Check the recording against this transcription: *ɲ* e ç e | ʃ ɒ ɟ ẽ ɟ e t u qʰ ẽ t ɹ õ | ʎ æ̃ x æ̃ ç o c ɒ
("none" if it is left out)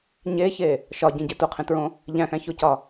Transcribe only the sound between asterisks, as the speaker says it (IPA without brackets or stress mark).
ɲ